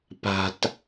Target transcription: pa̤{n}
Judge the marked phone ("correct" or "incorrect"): incorrect